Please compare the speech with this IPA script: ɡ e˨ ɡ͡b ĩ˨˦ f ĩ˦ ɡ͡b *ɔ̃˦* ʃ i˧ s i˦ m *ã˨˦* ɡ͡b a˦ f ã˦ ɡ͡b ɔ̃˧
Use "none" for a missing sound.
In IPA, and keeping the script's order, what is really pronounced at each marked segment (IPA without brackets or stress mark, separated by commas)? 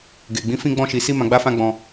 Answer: ɔ̃˦, ã˧